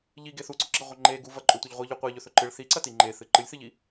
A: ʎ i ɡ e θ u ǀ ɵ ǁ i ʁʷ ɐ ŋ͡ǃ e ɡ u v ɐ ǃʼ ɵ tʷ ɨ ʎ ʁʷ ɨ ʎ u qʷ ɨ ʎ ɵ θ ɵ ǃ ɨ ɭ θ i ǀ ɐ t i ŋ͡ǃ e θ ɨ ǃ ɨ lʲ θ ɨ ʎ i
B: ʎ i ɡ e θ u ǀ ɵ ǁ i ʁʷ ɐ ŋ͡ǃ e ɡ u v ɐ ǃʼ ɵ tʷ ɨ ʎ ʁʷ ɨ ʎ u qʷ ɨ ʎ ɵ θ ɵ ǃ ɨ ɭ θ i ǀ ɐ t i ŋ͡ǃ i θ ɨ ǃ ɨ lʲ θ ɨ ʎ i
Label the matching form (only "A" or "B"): A